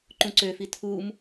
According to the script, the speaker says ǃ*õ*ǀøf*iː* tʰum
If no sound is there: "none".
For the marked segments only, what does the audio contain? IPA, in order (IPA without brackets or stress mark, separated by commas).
ũ, i